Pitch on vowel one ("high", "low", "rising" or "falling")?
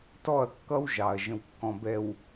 falling